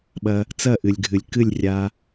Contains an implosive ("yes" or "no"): yes